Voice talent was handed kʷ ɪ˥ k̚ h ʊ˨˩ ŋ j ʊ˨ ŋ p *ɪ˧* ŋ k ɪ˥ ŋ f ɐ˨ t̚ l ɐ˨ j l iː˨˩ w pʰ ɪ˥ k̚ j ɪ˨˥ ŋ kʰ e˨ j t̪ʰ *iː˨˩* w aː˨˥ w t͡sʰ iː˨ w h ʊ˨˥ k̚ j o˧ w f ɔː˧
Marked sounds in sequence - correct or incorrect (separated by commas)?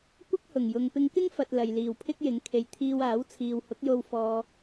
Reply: correct, incorrect